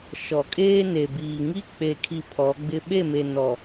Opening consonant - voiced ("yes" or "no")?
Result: no